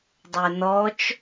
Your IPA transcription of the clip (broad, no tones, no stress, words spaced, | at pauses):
dˤønɔt͡ʃ